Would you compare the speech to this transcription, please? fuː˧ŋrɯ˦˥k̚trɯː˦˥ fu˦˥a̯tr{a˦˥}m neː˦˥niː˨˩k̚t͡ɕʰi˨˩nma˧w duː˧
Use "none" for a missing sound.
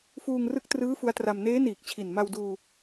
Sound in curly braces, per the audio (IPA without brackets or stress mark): a˧